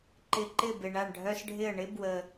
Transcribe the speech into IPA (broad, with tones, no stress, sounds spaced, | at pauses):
ǃ ɪ˨˩ ǃ ɪ˥˩ b ɪ˨˩ ɳ a˥˩ ɳ ɖʱ œ˦ s ɖʱ ɪ˥˩ ə̯ ɳ ɪ˦ b w ə˨˩